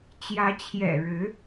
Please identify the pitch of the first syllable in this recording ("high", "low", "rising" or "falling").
rising